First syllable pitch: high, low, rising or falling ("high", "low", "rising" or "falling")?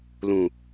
low